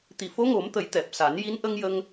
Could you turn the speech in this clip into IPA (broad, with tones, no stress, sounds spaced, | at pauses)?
t̪ i˨˩ f o˧˥ ŋ o˨˩˦ m t̪ ə˨˩˦ j t̪ ɛ˨˩ p̚ s a˨˩˦ n j i˧˥ n ʔ ə˧ ŋ j ə˧ ŋ